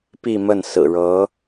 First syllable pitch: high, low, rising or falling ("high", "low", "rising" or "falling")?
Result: falling